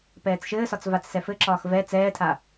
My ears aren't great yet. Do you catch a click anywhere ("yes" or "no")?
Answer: yes